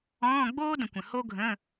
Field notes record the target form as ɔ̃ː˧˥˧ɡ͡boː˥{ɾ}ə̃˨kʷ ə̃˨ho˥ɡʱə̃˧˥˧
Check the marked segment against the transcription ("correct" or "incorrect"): incorrect